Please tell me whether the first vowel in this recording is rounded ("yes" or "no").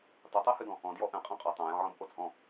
yes